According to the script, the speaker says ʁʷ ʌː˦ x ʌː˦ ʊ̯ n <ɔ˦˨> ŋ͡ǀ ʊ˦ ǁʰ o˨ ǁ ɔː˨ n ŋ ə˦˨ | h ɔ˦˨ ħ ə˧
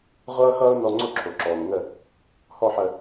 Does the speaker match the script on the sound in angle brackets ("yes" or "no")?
no